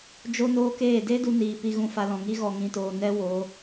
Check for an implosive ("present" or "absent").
absent